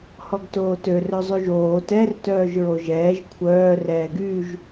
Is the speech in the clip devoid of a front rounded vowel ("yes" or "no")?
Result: no